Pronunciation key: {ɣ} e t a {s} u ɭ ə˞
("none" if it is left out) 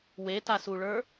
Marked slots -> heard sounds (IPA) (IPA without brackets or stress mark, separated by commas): w, s